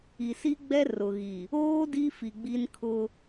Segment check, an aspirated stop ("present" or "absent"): present